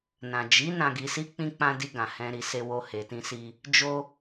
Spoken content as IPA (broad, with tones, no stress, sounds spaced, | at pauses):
n ã˨ d͡ʒ i˨˦ n ã˧ ɡ i˧ s i˦ k͡p ĩ˧ k͡p ã˧ d i˧ ɡ ã˨ h ɛ̃˧ ɾ i˧ s e˧ w o˧ h e˨ t ĩ˧ s i˧ | d͡ʒ o˧